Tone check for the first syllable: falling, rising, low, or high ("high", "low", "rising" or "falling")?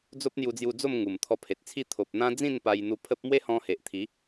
high